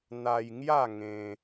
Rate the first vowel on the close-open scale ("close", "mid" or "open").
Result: open